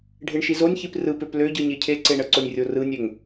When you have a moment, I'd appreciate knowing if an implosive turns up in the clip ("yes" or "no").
no